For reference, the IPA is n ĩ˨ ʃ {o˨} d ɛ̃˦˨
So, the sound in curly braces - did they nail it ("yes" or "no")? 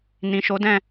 no